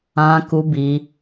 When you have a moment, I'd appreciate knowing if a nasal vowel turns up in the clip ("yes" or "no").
yes